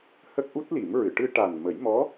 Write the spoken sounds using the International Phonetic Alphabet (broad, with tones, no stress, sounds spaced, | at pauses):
h ə˦˥ k̚ ʔ u˦˥ t̚ l i˨˩˦ m ɹ ɨ˨˩˨ ʈ ɨ˧ ʈ a˨˩ n m ə˨˩˦ j m ɔ˧˥